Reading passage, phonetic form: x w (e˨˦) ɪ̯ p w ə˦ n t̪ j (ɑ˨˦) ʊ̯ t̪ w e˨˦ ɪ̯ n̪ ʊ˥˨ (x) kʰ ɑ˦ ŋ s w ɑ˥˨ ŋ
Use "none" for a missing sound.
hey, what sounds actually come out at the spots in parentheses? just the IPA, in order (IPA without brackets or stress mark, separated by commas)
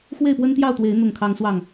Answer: e˥˨, ɑ˥˨, ŋ